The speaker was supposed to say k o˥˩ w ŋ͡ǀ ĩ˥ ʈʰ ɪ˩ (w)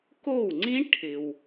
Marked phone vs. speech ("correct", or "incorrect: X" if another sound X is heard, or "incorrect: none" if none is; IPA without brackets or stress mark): correct